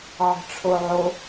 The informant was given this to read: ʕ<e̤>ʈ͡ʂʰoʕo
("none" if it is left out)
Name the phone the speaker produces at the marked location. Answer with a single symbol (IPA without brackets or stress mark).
e̤